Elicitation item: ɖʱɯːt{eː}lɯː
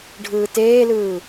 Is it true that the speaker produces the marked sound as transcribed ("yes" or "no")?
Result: yes